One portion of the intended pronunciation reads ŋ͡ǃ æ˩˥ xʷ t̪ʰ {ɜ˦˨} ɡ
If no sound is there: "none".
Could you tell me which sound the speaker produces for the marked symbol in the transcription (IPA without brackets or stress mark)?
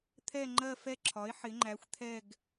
ɛ˦˨